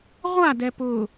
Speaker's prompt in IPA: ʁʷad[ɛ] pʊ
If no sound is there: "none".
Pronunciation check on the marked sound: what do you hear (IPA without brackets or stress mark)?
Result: ɛ